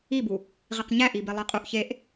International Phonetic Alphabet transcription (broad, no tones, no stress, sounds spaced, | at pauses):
i b u | ʁ i q ɲ æ ʔ i b e lˠ i qʼ u ʔ ç e ʔ